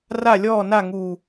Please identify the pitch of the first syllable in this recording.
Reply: falling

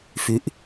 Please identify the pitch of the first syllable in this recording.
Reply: rising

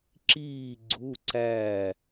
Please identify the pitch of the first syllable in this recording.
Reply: falling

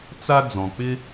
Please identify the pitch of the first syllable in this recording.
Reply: high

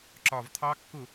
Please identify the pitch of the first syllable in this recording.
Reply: low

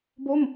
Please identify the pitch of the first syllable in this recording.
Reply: falling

